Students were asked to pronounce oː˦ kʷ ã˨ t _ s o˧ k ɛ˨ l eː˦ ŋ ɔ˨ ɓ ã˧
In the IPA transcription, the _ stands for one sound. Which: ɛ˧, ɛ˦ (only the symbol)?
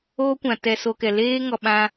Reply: ɛ˧